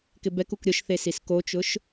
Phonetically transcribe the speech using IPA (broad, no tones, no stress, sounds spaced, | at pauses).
k ɪ b ɛ k u k ɾʲ ʊ ʃ θ e s i s k o t͡ʃ ʊ ʃ